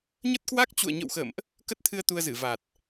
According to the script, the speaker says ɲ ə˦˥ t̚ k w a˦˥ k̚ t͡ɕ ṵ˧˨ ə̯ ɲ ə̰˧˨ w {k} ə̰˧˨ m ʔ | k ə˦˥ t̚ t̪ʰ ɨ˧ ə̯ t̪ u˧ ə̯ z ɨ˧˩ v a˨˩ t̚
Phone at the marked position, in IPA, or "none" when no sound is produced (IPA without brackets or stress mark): x